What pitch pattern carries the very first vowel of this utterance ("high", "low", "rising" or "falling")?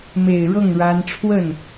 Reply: low